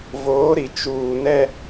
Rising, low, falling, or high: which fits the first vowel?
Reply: rising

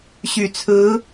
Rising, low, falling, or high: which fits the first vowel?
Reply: low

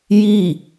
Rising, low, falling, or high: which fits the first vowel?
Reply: falling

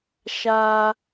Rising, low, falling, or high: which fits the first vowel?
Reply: high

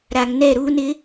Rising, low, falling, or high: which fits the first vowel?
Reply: low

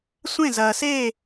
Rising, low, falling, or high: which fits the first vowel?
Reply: falling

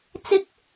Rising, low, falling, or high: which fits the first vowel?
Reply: high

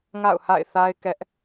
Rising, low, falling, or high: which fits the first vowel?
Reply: falling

